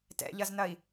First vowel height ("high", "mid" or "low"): mid